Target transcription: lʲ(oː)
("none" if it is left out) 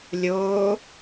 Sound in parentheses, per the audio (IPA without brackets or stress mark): oː